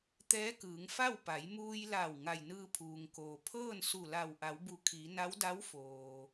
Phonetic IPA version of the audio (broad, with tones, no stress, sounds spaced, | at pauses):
t̪ ɛː˧˥ k ɯː˩˧ ŋ f a˥˨ w p a˩˧ j m uː˧ j l a˧˩ w ŋ a˧˩ j n ɯː˧ pʰ uː˩ ŋ k oː˩ pʰ ɤː˥˨ n s u˧˩ l a˧˩ w ʔ a˩˧ w b u˧˩ kʰ i˩˧ n a˧˥ w d a˧˥ w f oː˩